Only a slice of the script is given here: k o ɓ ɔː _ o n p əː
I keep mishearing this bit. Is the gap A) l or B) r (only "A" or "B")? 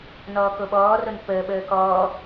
B